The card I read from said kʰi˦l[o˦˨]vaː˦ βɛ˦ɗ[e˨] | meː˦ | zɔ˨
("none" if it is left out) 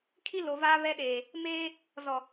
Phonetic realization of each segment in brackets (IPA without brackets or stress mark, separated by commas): o˨, eː˨